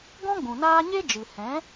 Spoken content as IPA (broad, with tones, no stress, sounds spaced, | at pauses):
ɡ ɔ̃˦ ɡ͡b ũ˨ n aː˦ ɲ e˦ d͡ʒ ɨ˨ h ɛ̃˨˦